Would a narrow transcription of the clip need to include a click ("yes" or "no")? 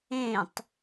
no